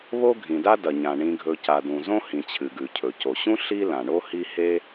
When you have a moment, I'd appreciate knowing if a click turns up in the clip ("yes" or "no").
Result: no